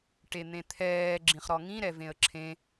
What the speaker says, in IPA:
ʈ e n̪ ẽ t̪ʰ ɛː ɡ͡ǁ ĩ χ ɾ ɔ ŋ ĩ ɾ ɛ v ẽ ə̯ ǁʰ ẽ

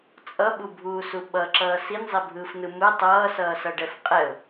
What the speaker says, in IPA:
t͡sʼ ʌ ɓ u bʱ uː s u ɓ ʌ ǁ ʌː s i n zˤ e bʱ ɯː f n ɯ m ɯ tˤ ʌː s ʌː s ʌ ɖ ɛ f qʼ ɛ ʊ̯

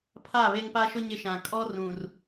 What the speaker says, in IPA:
pʰ a˦˨ β e˦ ŋ p a˦ ʃ ʊ˦ ɲ ɪ˦ ʃ ã˨ kʼ ɔ˦ r ũ˨ r

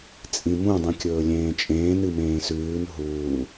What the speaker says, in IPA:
t͡sʼ ĩ m ũ dˤ ĩ kʲ ɵː lʲ ẽː t͡ʃʼ ẽː n ɨ m ẽː s ʉː n ɦ uː

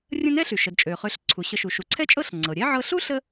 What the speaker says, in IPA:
rʲ ə̃˥ n ɛ˥ ɬ y˩ ʃ ə˩ d t͡ʃʼ ø˩ χ ø˨ ɬ ǀʰ u˩ ɕ ə˨ ʃ u˩ ʃ u˩ ǀʰ ɛ˦ t͡ʃʼ ɤ˦ ɬ ŋ͡ǀ ɤ˩ ɾʲ ɛ˥ ʕ ɤ˦ ɬ u˥ ɬ ə˦

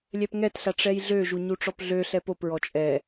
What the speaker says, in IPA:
lʲ ɛ p ŋ ɛ t ɬ a ʈ͡ʂ ɛ j ɮ ø ʒ u ɲ u ʈ͡ʂ ɔ p ɮ ø ɬ ɛ p o p ɹ ɔ t͡ʃʼ ɛ

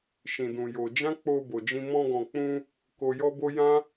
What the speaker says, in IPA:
ʃ ĩ˨ d ũ˨ j o˧ d͡ʒ ã˦ k͡p o˧ b o˨ d͡ʒ ĩ˧ m ɔ̃˧ ɡ ɔ̃˨ k͡p ũ˧ | k o˧ j ɔ˦ b o˦ j ã˦

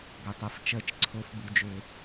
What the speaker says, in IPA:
ɡʷ e˩ tˤ e˩ f t͡ʃ əː˩ t͡ʃ ǀʰ ʊː˩ f b u˩ d͡ʒ ʏː˩

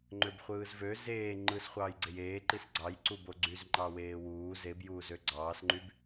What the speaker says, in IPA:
ŋ͡ǃ ø b χʷ ɯː z v ø z eː ŋ͡ǃ ɯ s χʷ ɑː j ɡ͡ǀ e j eː ǃ i s ɡ͡ǀ ɑ j ǀ u b o ɡ͡ǀ y z ŋ͡ǃ ɑ w eː w uː z e b j uː z ø ɡ͡ǀ ɑː s ŋ͡ǃ y b

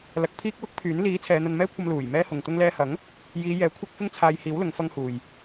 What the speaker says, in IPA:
l ɐ˨˥ k̚ pʰ iː˥ k̚ w ʊ˥ k̚ pʰ yː˨˥ n l iː˨˥ t͡sʰ ɛː˨˧ n̪ ɐ˧ n m ɛː˥ kʷʰ ɐ˧ m l uː˨˩ j m ɛː˥ h ʊ˨ ŋ t̪ ʊ˧ ŋ l ɛː˧ h ɐ˨˥ ŋ | j iː˨˧ j ɛː˨˥ kʷʰ ɐ˥ k̚ f ɪ˥ ŋ t͡sʰ aː˧ j h iː˨˥ w l ʊ˨˥ ŋ f ɐ˥ ŋ h uː˨ j

